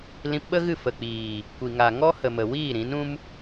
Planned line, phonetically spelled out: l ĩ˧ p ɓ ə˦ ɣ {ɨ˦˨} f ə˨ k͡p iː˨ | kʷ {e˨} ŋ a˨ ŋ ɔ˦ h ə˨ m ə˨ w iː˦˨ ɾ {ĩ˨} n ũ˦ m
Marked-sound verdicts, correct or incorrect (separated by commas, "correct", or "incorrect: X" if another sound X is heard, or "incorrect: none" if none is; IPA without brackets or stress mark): correct, incorrect: i˨, incorrect: ĩ˨˦